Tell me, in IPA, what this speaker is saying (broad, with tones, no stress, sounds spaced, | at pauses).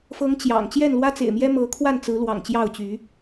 f ɤ˨˦ ŋ t͡ɕ j ɑ̰˨˩ ŋ t͡ɕ j ɛ˥˨ n l w ä˦ t͡s ḛ˨˩ ɪ̯ m j ɛ˦ m ɤ˨˦ kʰ w a˥˨ n t͡s ɹ̩˨˦ l w ɑ̰˨˩ ŋ t͡ɕ j ɑ˥˨ ʊ̯ t͡ɕ y˨˦